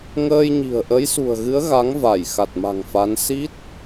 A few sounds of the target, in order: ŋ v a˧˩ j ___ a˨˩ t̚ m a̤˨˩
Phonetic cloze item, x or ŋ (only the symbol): x